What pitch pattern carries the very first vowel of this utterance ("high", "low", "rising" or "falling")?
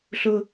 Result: high